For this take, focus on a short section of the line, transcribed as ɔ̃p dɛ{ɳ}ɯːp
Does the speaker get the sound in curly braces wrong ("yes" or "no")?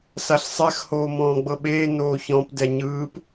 yes